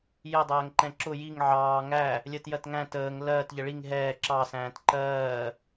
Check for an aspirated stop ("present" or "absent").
absent